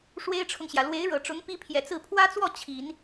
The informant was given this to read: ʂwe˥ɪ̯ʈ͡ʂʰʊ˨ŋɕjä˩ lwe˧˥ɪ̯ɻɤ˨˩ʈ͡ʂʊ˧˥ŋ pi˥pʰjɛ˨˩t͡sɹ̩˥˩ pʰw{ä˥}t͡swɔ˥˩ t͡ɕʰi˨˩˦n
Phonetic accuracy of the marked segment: correct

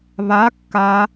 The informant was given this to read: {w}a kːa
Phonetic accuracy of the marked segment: incorrect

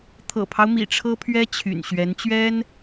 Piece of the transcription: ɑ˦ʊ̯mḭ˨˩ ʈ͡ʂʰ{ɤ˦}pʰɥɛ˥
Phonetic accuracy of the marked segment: incorrect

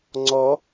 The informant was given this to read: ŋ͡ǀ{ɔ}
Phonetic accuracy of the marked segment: correct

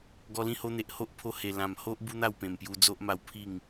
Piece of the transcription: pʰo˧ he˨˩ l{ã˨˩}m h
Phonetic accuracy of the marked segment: correct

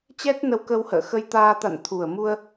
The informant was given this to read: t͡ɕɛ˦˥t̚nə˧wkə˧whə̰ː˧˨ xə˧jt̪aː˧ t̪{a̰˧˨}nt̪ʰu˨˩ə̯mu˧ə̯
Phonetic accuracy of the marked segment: correct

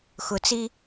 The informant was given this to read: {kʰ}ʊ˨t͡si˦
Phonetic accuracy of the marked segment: incorrect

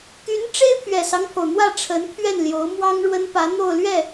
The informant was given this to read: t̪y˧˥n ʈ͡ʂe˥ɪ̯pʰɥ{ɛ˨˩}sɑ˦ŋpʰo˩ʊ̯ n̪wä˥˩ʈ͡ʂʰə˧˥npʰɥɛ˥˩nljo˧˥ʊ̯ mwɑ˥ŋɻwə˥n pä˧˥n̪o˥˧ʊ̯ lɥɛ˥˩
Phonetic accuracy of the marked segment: correct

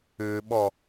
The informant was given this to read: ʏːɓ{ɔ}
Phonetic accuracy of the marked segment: correct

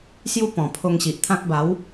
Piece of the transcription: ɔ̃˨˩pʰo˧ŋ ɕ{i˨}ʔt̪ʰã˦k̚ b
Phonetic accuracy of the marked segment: correct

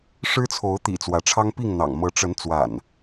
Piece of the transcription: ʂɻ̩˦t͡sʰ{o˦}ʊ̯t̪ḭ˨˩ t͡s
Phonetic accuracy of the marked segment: incorrect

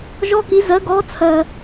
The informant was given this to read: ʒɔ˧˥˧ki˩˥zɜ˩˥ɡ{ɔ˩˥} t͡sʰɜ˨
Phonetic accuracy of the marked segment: correct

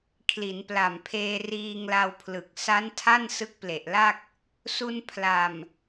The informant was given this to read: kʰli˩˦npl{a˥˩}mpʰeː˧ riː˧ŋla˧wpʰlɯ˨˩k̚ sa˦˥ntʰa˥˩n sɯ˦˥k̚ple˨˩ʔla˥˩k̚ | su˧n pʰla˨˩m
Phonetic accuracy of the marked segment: incorrect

